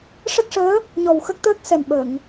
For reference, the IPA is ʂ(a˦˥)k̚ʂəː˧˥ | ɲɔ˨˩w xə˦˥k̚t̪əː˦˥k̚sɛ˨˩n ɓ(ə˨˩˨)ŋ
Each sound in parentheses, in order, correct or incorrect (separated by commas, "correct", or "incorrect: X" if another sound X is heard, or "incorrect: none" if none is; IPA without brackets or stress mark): incorrect: ə˦˥, correct